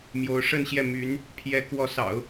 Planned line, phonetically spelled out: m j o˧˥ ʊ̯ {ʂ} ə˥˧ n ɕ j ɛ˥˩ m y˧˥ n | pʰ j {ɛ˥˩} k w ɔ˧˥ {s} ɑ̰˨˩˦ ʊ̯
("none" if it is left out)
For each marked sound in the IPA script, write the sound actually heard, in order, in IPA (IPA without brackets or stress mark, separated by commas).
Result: ʂ, ɛ˧˥, s